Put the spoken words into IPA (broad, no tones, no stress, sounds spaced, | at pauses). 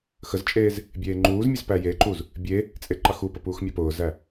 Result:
x ə z t͡ʃʼ eː z | bʲ eː ŋ͡ǃ uː z mʲ œ z p æ j e ǃ u z | bʲ e | t͡sʼ e ǃ ɑ x u p ə p uː x mʲ ɑ p ʊː z æ